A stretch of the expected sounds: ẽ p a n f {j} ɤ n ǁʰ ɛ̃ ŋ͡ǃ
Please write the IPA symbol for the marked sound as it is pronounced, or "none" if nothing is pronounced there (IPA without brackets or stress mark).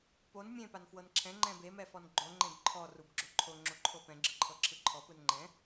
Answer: w